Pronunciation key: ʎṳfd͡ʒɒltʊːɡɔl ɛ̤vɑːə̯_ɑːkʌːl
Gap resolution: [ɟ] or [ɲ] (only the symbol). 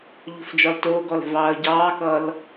ɟ